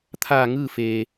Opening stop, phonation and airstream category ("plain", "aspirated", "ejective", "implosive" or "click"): aspirated